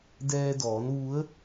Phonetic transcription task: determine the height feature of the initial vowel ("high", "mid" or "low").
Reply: mid